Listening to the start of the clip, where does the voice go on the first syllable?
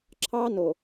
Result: high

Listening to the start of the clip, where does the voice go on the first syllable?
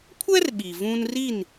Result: high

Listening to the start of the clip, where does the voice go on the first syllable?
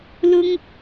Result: high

